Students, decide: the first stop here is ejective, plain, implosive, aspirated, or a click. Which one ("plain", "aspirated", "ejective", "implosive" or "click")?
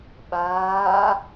implosive